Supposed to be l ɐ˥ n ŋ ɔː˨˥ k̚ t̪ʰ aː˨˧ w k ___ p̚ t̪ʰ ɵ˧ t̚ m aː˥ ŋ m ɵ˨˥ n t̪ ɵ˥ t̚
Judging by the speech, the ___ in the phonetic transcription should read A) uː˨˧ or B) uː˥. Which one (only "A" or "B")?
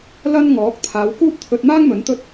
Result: B